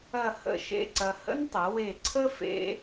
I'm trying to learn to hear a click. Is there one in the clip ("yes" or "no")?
yes